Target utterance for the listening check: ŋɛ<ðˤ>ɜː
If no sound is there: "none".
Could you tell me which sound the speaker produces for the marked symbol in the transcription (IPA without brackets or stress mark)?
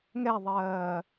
ðˤ